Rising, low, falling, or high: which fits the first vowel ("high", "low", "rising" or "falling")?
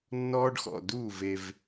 high